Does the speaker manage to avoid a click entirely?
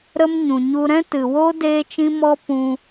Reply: yes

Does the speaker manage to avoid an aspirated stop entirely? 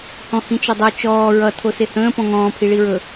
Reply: no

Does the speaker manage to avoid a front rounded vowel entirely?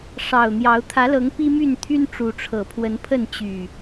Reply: no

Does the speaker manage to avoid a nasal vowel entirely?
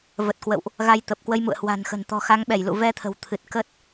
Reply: yes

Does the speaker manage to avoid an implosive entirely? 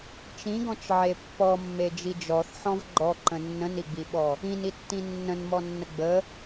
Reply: no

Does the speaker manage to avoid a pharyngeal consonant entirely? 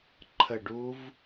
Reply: yes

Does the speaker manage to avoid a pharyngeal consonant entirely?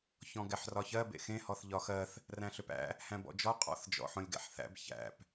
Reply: no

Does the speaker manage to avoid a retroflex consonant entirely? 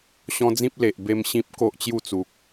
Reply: yes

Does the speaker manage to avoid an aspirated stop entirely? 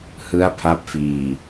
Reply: no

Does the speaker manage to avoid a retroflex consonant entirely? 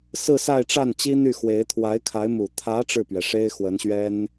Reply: no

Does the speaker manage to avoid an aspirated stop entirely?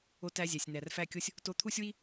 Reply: no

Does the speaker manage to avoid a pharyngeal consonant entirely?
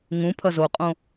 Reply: yes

